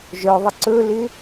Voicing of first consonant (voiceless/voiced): voiced